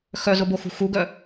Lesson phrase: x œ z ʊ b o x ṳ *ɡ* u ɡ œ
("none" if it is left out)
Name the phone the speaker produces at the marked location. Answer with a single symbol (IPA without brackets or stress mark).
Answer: x